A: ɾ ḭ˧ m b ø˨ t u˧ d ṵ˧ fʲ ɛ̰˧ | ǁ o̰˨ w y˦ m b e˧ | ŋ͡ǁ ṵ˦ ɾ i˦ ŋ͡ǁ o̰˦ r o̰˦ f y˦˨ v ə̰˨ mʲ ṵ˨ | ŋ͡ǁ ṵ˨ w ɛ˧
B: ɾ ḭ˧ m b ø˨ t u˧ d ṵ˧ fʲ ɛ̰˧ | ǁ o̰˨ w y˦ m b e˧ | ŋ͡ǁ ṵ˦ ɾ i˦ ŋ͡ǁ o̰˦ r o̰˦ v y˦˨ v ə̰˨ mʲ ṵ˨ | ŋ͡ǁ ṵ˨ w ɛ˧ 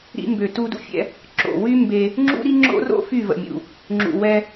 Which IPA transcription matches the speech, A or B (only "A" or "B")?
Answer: A